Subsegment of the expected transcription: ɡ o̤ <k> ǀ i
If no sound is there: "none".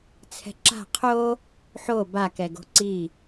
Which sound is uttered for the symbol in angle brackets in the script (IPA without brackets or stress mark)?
none